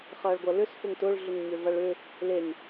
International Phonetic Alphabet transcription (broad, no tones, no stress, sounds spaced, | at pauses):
χ ɐː ɭ ɡʷ ɐ l ʏ s f ʊ ŋ t ʊ ɭ ɮ ʏ ŋ ɲ ʏ v ɐ ɭ ʏ | l e ŋ